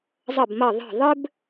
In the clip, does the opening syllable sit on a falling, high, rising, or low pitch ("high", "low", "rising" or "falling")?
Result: falling